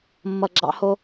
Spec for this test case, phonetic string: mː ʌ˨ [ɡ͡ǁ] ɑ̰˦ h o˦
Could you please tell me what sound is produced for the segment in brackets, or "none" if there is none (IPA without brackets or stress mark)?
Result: ɡ͡ǁ